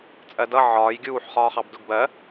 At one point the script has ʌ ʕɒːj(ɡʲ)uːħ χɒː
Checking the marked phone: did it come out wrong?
no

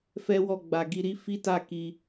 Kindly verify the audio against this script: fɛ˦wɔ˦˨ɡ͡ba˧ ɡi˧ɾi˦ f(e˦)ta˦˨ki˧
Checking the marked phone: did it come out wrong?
yes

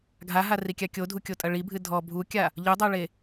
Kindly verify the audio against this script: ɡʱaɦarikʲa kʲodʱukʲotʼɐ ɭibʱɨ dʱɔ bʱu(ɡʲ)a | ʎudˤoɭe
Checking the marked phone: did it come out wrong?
yes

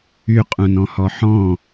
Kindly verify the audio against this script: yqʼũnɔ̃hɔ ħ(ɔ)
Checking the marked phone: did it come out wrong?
yes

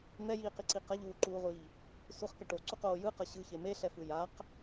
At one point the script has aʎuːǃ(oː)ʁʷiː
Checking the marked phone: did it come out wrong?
yes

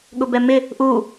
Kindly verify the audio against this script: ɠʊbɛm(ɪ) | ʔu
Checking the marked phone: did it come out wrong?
no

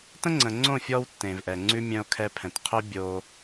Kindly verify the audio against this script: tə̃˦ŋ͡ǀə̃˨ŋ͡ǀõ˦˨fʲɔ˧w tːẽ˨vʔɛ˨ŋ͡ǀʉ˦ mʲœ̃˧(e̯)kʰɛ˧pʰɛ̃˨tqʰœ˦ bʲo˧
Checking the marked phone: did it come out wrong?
yes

